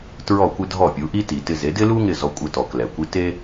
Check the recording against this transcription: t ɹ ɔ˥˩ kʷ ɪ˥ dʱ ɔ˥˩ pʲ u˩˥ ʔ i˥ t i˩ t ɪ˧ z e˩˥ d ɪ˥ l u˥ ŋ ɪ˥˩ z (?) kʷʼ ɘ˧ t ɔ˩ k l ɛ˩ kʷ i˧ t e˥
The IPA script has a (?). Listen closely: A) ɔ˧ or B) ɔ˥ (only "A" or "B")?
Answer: A